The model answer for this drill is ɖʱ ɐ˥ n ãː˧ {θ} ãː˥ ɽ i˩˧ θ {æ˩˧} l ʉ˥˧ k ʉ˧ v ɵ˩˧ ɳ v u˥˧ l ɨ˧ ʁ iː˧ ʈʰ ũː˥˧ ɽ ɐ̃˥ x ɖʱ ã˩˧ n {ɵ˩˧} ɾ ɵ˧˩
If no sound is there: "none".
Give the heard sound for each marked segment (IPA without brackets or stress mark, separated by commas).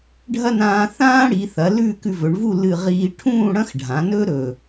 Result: θ, ɐ˩˧, ɵ˥